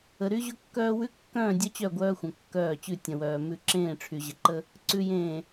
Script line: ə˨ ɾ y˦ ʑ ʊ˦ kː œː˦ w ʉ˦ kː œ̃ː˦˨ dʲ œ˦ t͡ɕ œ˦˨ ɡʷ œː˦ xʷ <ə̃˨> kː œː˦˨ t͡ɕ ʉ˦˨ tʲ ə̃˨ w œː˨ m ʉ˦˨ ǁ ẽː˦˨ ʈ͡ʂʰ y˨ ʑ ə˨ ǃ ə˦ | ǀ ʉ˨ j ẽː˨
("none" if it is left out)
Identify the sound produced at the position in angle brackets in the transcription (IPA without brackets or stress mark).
ə̃˨